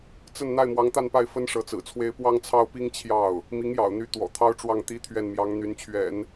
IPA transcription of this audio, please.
t͡s ə˥˧ n n̪ a˥˩ ɪ̯ m w ɑ˧˥ ŋ t̪ a˥˧ n p a˥˩ ɪ̯ f ə˥ n ʂ ɤ˧˥ t͡s ɹ̩˨˩ t͡sʰ w e˥ ɪ̯ p w ɑ˥ ŋ t͡sʰ ɑ˥ ʊ̯ p i˥ ŋ t͡ɕʰ j ɑ˥˩ ʊ̯ | m i˧˥ ŋ j ɑ̰˨˩ ʊ̯ n̪ y˧˥ t̪ w ɔ̰˨˩ t̪ʰ ɑ˥ ʊ̯ ʈ͡ʂ w ɑ˥˩ ŋ t̪ i˥ t̪ʰ ɥ ɛ˥˩ n m j ɑ˧˥ ŋ n̪ y˧˥ n t͡ɕʰ ɥ ɛ̰˨˩˦ n

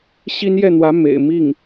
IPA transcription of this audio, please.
ɕ i˥ n j ɛ˥˩ n̪ w ä˧˥ m ḛ˨˩ ɪ̯ m i˥˩ ŋ

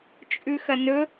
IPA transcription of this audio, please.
t͡ʃʼ ʉ x ɐ n ɵ

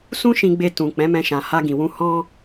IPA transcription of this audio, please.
s ũ˦ ʃ ĩ˧ ɡ͡b e˧ t ũ˨ k͡p ɛ̃˨˦ m ɛ̃˧ ʃ ã˨ h a˧ ɡ ĩ˨ w ũ˧ h ɔ̃˦

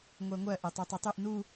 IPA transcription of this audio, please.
ŋʷ ɜ ŋʷ ɜ ʔ e tˤ ʉ tˤ ɜ tˤ ʉ ʔ n u

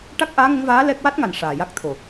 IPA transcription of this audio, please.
ʈ a˦˥ k̚ ʔ aː˧˥ ŋ ə˧˥ ŋ v aː˧˥ l ɛ˦˥ k̚ w a˦˥ t̚ ŋ a˨˩ n ʂ aː˨˩ j a˦˥ k̚ t̪ʰ o˨˩

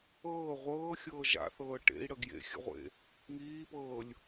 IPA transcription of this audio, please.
ɤː ʁʷ ɤː xʲ ɤː ʒ a̰ θ ɤː ʈ ḛ i̯ ɽ ə ɡ j ḛ xʲ ə̰ ʁʷ ḛ | ŋ iː p ɤː lʲ

